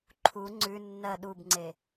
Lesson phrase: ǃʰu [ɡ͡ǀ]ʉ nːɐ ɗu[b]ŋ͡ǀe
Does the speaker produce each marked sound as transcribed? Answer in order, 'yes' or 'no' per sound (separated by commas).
no, yes